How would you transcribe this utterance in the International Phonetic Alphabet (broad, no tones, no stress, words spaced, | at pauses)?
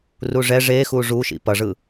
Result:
ruʐɛ ʐexu ʐuʃḭ pʌʐɯ